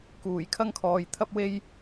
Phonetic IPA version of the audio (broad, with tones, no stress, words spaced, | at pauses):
kuː˨˩jkʰɐ˧ŋkʰɔː˨j t̪ʰɐ˧p̚we˧j